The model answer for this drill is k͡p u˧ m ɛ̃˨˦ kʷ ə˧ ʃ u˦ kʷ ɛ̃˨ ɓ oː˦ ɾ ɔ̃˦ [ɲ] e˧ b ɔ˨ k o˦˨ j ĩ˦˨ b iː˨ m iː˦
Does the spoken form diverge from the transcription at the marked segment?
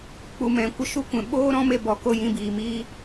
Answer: yes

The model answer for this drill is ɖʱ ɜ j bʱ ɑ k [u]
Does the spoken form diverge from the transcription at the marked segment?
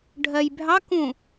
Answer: yes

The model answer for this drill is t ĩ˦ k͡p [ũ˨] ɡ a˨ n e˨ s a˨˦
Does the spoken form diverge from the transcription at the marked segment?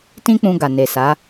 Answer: yes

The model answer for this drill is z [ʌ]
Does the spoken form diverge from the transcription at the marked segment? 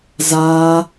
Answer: yes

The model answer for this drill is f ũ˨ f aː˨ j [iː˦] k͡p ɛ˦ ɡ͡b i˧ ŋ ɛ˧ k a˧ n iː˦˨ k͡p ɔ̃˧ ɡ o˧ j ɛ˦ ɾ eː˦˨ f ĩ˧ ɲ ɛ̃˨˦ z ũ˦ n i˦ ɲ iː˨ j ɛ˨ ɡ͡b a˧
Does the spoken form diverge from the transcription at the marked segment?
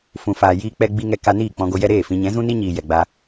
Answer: no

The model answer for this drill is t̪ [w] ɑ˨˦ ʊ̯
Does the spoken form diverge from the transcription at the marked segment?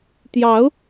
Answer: yes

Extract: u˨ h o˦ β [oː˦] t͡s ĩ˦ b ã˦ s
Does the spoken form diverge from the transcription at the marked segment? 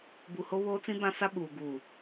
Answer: no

